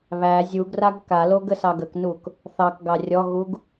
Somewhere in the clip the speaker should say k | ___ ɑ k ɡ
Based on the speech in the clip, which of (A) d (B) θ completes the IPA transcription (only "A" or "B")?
B